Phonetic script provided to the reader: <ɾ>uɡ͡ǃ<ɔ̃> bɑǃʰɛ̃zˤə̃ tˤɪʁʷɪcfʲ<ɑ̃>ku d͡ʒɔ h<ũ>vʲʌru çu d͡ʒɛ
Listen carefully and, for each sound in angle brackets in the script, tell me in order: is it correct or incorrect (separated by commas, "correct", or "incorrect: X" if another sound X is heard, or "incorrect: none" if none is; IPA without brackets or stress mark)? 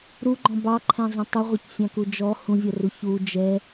correct, correct, correct, correct